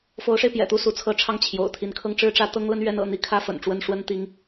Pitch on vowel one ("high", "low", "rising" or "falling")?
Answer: rising